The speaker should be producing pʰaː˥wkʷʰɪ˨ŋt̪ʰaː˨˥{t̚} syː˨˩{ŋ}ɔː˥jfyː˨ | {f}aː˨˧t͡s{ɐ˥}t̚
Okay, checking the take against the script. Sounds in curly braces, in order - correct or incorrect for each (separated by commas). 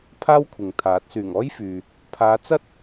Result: correct, correct, incorrect, correct